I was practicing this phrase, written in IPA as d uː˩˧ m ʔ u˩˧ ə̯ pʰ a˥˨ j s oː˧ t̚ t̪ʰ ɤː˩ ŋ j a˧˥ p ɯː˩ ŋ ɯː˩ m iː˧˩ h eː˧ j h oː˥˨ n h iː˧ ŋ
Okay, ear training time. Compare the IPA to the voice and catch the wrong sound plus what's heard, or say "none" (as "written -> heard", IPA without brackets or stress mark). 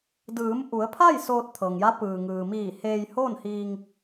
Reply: uː˩˧ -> ɯː˩˧